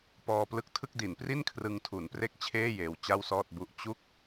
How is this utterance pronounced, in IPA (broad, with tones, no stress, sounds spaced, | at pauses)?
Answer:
p ɔː˧ p l ɯ˦˥ k̚ tʰ ɯ˥˩ k̚ d i˩˦ n p r i˥˩ n kʰ r ɯ˧ ŋ tʰ u˩˦ n p r e˥˩ k̚ t͡ɕʰ eː˥˩ j eː˧ w t͡ɕ a˥˩ w s ɔː˥˩ t̚ b u˥˩ ʔ t͡ɕ u˥˩ k̚